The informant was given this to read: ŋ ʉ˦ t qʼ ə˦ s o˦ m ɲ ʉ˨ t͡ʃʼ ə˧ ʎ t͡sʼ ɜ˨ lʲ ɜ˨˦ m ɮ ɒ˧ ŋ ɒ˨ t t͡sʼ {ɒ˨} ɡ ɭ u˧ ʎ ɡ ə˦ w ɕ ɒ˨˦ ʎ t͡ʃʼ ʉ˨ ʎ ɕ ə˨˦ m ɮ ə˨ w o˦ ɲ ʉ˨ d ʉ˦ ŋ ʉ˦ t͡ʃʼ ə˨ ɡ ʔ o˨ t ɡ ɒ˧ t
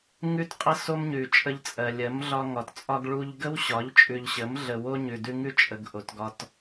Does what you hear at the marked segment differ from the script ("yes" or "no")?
yes